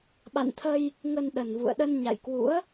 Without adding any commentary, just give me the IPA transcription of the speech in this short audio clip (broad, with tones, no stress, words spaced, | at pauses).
ɓa̰˧˨nt̪ʰə˧j | ŋə˧nɗə˨˩nvṵ˧˨ə̯ ɗə˧nɲa̰˧˨jkwṵ˧˥ə̯